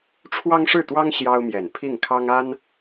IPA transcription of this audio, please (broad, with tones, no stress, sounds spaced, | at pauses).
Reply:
ʈ͡ʂʰ w ɑ˥ ŋ ʂ ɻ̩˥˩ t̪ w ɑ˥ ŋ ɕ j ɑ˥ ʊ̯ m j ɛ˨˩ n pʰ i˥˩ ŋ kʰ ɑ˥ ŋ a˥ n